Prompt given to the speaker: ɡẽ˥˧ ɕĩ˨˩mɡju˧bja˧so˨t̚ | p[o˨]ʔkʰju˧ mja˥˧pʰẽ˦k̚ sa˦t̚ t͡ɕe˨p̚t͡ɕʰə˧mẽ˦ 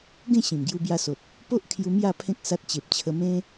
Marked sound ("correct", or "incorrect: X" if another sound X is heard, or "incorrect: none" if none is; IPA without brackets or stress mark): incorrect: o˦